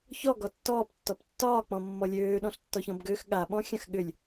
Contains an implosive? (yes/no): yes